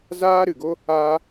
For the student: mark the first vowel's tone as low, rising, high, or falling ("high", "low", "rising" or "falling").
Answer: high